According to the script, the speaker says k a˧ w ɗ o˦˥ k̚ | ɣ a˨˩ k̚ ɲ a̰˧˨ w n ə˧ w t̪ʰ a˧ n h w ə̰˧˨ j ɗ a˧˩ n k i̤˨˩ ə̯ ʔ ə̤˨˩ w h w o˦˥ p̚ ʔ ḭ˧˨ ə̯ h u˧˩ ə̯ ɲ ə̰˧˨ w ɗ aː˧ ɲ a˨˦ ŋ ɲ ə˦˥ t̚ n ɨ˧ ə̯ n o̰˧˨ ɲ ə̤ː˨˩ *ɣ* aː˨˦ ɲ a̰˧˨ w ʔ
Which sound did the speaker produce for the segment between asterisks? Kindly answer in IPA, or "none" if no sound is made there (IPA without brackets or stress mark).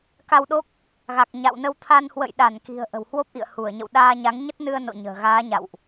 ɣ